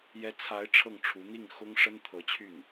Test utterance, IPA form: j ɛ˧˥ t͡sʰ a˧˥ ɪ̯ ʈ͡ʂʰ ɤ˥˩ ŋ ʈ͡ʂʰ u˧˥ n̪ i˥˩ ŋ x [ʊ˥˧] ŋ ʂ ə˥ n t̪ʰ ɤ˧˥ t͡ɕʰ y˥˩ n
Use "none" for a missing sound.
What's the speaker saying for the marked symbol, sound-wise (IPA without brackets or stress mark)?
ʊ˥